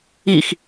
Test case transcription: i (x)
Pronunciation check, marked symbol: correct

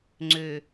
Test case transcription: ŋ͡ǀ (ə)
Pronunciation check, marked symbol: incorrect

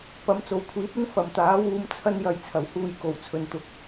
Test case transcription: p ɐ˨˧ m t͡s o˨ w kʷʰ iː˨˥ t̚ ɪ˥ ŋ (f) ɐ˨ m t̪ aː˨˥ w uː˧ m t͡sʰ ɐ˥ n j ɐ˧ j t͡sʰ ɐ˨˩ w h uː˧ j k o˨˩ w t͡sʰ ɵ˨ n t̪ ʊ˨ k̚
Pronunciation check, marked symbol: correct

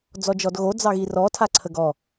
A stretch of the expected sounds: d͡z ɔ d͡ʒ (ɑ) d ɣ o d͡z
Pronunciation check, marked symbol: incorrect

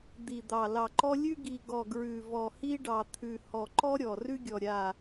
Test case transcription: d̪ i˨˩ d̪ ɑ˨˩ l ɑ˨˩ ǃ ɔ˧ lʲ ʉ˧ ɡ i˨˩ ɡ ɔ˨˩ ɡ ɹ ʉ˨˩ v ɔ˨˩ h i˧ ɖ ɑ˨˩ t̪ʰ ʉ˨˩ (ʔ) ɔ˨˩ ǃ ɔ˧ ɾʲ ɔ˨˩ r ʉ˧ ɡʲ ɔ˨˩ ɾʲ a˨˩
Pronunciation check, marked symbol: incorrect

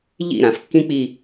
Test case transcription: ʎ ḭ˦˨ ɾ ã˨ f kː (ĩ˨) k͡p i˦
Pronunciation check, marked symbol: incorrect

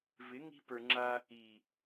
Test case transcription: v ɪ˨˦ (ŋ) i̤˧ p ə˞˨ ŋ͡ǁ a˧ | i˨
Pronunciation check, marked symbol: correct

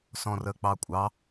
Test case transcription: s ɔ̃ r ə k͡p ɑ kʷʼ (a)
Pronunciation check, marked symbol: incorrect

